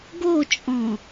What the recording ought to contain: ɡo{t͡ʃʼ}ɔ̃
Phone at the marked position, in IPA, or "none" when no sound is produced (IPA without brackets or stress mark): t͡ʃʼ